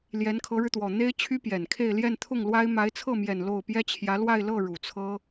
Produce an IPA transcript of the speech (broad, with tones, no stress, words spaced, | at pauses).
ljɛ˧˥nkʰɤ˧˥ɻɻ̩˧t̪wɔ˨˩ n̪e˥ɪ̯t͡ɕʰy˥pjɛ˨˩nkʰe˥˧ɪ̯ ljɛ˥˧nt̪ʰʊ˥˩ŋlwa˥ɪ̯ ma˧˥ɪ̯t͡sʰɤ˥˩mjɛ˨˩n lo˥˩ʊ̯ pjɛ˥t͡ɕʰjä˧˥ lwa˥˧ɪ̯lɤ˥˩ ɻu˨˩t͡sʰɤ˥